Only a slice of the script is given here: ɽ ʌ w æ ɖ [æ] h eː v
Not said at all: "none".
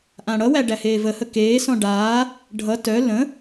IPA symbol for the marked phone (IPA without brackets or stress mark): æ